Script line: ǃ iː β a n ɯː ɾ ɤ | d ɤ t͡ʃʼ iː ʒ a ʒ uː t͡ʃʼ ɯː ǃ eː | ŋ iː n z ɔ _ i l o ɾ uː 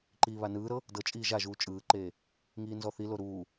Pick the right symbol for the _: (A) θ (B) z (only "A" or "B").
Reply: A